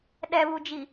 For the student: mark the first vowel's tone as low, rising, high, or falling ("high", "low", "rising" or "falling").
low